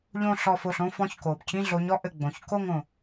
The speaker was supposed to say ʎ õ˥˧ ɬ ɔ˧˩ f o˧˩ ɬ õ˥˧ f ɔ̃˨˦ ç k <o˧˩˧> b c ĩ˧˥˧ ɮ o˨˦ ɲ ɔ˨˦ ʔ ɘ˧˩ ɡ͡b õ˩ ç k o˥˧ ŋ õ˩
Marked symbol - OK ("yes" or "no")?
no